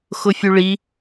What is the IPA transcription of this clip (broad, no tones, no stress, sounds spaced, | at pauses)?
x ʊ fʲ u ɭ i